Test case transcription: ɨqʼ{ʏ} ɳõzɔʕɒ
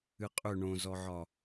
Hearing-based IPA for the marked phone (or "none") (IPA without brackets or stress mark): ʏ